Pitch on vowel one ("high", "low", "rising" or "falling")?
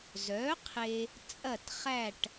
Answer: rising